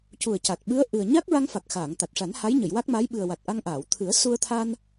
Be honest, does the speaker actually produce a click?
no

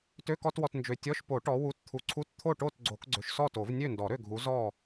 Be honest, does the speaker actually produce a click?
yes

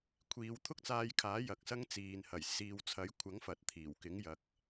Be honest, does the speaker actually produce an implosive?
no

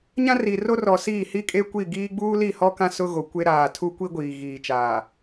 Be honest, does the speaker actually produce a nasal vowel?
yes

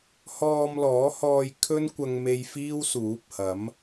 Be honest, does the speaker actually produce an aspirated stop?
yes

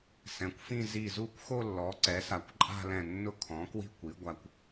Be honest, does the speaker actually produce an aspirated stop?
yes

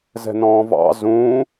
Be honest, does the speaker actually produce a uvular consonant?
no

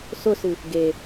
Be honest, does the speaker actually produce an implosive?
no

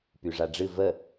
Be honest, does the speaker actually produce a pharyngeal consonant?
no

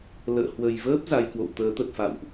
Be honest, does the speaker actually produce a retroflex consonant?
no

